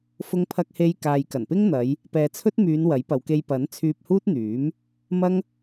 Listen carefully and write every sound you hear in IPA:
f ʊ˧ ŋ pʰ ɐ˧ k̚ h e˧ j k aː˨ j k ɐ˨˩ n p ɪ˥ ŋ n̪ ɐ˨˧ j | p ɛː˨ t͡sʰ ɵ˥ t̚ m yː˨˧ n w ɐ˨˥ j p ɐ˨˧ w k e˧ j p ɐ˨˥ n t͡sʰ yː˧ p̚ h uː˥ t̚ n̪ yː˨˥ m | m ɐ˥ ŋ

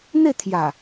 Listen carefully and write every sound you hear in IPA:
n̪ e˥˧ t̪ʰ j a˨˩

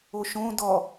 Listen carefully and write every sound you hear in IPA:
o ʃ õ d ɔ

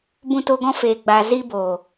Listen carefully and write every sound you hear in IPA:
b ũ˧ t o˧ ɡ ɔ̃˧ f eː˨ ɡ͡b aː˨ z iː˧ b o˨

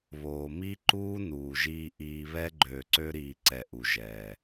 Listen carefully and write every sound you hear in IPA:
β oː˧ m i˦ ǃ uː˦ n uː˨ ʒ iː˧ ʔ iː˧ β ɛ˦ ɡ͡ǃ øː˨ ǀ ø˧ ɾ iː˨ ǀ ɛ˨ ʔ u˨ ʒ ɛː˨

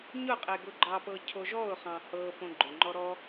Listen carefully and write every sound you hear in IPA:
ɲ ʊ qʼ e ɡ ʊ ɡ͡ǃ ɑ p ɤ cʰ o ʒ ɔ ʊ̯ χ ɑ̃ h ɤ p õ ɡ͡ǃ ʊ ŋ͡ǃ ɔ ɾ ɔ

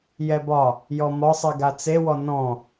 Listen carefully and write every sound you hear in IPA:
j ɛ b ɒ | j ɔ m ɒ sˤ i ɡ a t͡s e w ɔ n ɔ̃

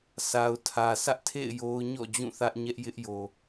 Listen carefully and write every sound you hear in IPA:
sʰ a˨ ʊ̯ tʰ ä˨ sʰ ä˦ ʔ tʰ ḛ˦˨ ɪ̯ j o˦ ʊ̯ ɲ ɔ̰˦˨ d͡ʑ ũ˦˨ θ ä˦ ʔ ɲ ɛ˦ ʔ j ɪ˦ ʔ j o˨

